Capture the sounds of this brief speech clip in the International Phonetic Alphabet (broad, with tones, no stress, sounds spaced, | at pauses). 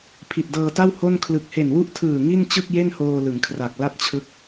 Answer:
pʰ i˨˩ t̚ d ɤː˧ t a˥˩ w h o˥˩ n kʰ l ɯ˨˩ k̚ h e˨˩ n w u˦˥ ʔ tʰ ɯː˨˩ ŋ i˥˩ n t͡ɕ ɯ˥˩ k̚ j e˥˩ n h oː˧ l ɯ˩˦ ŋ kʰ r a˨˩ k̚ l a˥˩ t̚ t͡ɕʰ ɯ˦˥ k̚